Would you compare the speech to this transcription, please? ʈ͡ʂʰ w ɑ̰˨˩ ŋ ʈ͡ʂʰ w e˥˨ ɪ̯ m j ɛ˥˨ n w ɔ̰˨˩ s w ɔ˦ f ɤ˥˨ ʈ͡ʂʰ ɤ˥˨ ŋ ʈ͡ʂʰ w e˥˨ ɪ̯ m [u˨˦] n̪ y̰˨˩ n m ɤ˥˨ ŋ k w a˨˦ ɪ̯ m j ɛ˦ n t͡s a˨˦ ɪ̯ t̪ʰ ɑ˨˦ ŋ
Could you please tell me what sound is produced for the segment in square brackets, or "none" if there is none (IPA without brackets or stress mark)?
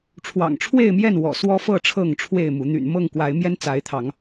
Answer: u˨˦